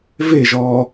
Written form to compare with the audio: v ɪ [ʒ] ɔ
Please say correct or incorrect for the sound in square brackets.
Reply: correct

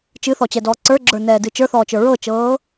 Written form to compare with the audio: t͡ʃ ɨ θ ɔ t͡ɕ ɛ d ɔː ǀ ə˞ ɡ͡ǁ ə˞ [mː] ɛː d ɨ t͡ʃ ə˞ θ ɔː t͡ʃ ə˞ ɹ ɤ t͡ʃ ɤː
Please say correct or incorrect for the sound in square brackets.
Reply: incorrect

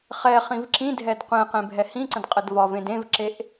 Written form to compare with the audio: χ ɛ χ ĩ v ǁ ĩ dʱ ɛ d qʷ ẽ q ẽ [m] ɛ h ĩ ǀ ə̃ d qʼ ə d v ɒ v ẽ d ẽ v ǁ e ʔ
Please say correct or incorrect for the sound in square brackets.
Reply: incorrect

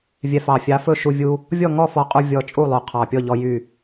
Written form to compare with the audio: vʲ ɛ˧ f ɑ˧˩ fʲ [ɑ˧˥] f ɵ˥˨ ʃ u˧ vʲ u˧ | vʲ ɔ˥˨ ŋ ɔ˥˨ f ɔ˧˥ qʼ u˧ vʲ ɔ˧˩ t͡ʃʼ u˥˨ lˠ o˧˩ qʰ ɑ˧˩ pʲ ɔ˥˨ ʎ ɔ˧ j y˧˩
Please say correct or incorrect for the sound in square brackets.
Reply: correct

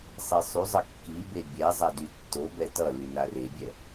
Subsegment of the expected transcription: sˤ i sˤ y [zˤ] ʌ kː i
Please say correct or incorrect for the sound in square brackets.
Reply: correct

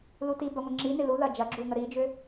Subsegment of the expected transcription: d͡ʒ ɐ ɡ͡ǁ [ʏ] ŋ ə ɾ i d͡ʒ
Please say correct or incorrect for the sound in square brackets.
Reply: incorrect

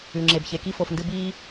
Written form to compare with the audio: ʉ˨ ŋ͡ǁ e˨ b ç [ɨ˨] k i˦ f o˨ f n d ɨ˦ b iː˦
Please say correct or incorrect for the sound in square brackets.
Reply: incorrect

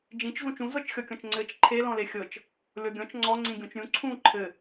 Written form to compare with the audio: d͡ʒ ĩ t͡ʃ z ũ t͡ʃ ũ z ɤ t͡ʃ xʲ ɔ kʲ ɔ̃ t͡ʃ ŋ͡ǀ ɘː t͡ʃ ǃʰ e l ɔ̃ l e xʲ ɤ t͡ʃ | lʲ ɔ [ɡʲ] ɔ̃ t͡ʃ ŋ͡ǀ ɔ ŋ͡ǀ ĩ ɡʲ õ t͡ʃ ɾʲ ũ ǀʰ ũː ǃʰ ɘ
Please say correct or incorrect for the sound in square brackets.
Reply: correct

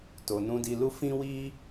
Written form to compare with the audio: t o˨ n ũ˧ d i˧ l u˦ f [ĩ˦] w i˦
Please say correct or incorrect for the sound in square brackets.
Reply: correct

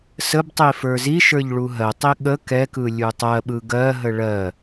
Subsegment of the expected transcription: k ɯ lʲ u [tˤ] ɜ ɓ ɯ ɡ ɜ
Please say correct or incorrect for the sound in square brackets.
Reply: correct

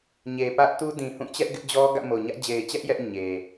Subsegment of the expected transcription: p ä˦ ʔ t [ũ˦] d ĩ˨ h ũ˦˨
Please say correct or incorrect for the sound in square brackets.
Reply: incorrect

